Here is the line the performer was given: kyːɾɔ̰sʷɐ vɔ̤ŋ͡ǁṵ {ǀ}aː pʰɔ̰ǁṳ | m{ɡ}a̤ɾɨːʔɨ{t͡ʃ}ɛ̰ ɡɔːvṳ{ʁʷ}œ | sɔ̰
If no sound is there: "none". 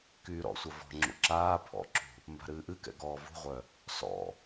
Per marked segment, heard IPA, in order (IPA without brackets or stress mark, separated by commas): ǁ, b, k, ʁʷ